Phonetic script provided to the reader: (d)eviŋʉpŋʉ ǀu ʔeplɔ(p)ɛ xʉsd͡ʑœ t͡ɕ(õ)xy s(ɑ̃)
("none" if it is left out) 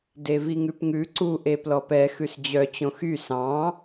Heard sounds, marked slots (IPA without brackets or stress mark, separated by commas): d, p, õ, ɑ̃